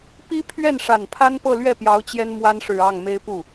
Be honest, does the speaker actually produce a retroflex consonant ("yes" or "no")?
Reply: yes